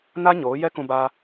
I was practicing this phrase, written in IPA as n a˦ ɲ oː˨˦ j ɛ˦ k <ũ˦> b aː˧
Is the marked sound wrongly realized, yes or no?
yes